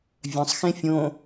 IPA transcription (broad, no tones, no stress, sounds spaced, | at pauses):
vʲ œ̃ sˤ x ẽ fʲ õ